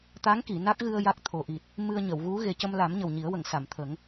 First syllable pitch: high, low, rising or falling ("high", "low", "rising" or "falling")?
rising